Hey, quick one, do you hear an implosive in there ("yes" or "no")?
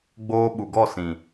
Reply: yes